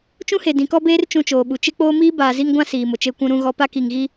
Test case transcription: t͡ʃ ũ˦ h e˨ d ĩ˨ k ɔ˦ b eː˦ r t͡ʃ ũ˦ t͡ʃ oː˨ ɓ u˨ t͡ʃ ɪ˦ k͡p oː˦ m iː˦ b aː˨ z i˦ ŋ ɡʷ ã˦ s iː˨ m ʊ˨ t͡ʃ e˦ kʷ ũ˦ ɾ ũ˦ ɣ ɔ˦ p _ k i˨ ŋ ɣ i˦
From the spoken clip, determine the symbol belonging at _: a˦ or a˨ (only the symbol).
a˦